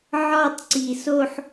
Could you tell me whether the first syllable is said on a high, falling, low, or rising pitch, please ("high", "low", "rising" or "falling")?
falling